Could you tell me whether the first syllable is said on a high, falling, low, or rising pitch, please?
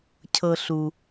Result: low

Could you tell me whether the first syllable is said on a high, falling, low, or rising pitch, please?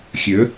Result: rising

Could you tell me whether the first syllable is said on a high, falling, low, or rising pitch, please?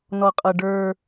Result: low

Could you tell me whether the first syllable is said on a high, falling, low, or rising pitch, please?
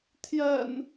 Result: low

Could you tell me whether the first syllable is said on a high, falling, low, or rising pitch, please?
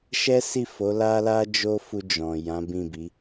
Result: high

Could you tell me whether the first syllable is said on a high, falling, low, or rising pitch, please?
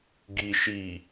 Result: low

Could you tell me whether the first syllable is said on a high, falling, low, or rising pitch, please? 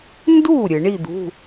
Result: falling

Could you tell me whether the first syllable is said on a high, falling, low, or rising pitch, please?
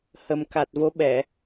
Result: low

